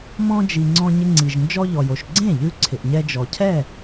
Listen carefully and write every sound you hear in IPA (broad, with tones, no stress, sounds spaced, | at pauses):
m ɔ̃˧ d͡ʒ i˩ ŋ͡ǀ ɔ̃˧ ɲ ɪ˧ ŋ͡ǀ i˩ ʒ n d͡ʒ ɔ˧ ʎ ɔ˩ j o˩ ʃ ɡ͡ǀ ẽ˥˩ ʎ ʉ˧ ǀʰ ɪ˩ ʔ ɲ ɛ˧ d͡ʒ ɔ˩ cʰ ɛ˥˩